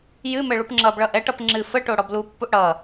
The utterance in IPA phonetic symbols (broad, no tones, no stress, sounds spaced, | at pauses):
j ɨ m ɘ ɭ u p ŋ͡ǁ ʌ b ɭ ʌ ʔ ɛ ʈ ʌ p ŋ͡ǁ ɨ f ə ʈ o ɽ ɔ b l u pː u ʔ ɽ ʌ